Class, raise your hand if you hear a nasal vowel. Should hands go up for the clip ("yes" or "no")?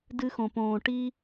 yes